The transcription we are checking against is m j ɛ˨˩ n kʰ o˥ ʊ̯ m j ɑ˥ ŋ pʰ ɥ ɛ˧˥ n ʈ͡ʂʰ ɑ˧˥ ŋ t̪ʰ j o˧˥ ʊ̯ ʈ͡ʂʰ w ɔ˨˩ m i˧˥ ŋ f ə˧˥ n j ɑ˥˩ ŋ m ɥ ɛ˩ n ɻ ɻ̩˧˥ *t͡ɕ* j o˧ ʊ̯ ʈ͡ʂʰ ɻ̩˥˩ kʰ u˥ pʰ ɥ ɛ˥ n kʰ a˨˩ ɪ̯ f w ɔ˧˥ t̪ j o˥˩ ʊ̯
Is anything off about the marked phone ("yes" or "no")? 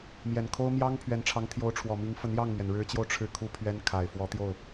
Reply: no